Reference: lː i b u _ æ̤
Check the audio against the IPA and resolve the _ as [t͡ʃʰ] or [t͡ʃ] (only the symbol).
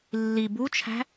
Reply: t͡ʃʰ